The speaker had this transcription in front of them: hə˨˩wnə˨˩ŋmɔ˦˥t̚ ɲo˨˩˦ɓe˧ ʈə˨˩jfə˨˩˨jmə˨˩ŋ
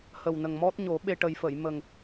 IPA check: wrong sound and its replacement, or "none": none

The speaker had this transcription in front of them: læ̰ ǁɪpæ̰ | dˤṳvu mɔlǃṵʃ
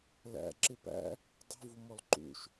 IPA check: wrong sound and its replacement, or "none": none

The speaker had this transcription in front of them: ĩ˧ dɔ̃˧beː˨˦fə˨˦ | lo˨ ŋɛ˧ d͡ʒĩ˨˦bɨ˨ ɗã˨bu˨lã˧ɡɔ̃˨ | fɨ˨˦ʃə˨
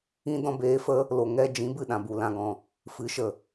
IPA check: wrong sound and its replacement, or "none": none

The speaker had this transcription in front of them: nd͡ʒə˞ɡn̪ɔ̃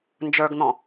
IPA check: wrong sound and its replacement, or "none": none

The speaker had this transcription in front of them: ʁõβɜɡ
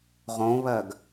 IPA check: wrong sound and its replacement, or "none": none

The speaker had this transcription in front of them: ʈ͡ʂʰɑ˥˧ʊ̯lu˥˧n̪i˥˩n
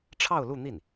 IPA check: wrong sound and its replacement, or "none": none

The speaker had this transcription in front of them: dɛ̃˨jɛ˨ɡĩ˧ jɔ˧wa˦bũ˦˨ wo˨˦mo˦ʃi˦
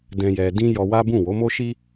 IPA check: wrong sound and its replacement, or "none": ɡ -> d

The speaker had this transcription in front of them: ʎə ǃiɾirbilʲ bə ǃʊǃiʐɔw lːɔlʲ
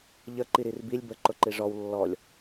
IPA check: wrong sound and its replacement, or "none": none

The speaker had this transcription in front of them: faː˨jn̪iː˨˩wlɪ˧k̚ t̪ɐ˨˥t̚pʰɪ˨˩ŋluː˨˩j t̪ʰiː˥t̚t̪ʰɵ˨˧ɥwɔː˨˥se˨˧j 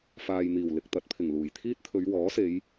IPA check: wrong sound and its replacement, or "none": none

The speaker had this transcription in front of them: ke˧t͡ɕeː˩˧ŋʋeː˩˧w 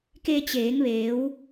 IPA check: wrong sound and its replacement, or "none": none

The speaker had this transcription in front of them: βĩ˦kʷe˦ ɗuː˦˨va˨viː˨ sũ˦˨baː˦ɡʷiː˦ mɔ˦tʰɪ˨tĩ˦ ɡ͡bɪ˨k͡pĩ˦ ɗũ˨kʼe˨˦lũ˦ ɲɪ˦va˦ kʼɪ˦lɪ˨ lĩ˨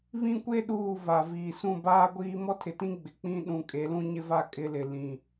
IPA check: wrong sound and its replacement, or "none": none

